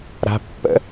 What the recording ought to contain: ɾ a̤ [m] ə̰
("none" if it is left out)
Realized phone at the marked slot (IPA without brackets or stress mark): pː